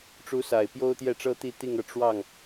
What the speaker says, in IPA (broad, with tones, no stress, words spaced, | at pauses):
ʈ͡ʂu˧˥sa˨˩ɪ̯ pjo˥ʊ̯t̪jɛ˥˩ʈ͡ʂɤ˥t̪i˥˧ t̪i˥˧ŋɤ˥˧ ʈ͡ʂwɑ˥˩ŋ